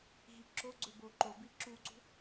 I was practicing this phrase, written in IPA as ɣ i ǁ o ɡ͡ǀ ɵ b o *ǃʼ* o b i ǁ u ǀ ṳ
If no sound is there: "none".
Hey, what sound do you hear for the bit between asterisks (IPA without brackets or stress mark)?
ǃ